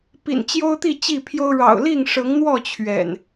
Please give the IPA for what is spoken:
p ḭ˨˩ n t͡ɕ j o˦ ʊ̯ t̪ i˥˨ t͡ɕ i˥˨ pʰ j o˦ ʊ̯ ɻ ɑ̰˨˩ ʊ̯ l i˥˨ ŋ ʂ ɤ˨˦ ŋ n̪ w ɔ˥˨ t͡ɕʰ ɥ ɛ̰˨˩ n

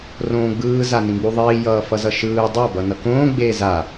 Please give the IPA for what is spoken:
r õː ɡ͡b ɯː z a n ĩ ɡ͡b u ðˤ iː j ʌː f ʌ z ʌ ʃ ɯː dˤ a b ʌ n ʌ k õː ɡ͡b eː z a

